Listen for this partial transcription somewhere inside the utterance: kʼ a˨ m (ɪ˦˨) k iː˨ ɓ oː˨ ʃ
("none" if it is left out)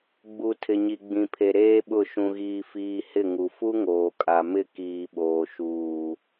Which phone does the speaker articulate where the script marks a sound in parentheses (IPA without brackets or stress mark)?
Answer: ɪ˦˨